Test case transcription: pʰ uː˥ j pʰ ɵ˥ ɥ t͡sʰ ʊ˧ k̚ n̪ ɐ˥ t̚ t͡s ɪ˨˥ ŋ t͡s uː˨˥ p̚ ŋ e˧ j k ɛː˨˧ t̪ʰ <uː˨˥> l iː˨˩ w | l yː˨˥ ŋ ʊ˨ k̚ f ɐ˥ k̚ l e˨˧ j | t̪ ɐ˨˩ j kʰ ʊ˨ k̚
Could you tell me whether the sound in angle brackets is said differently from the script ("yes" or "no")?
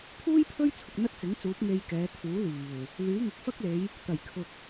no